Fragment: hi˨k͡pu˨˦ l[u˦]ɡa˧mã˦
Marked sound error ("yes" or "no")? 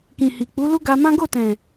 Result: no